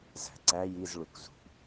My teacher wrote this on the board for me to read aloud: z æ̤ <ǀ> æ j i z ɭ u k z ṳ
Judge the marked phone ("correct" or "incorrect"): correct